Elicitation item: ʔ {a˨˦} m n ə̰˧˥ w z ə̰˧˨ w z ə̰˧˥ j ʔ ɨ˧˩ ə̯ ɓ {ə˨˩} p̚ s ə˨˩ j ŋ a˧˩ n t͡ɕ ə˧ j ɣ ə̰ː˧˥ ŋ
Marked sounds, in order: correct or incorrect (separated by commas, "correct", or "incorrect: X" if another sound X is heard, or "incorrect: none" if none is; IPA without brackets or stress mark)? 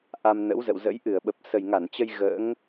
incorrect: a˧, correct